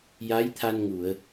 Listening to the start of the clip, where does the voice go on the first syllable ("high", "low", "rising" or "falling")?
rising